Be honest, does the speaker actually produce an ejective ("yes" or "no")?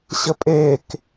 yes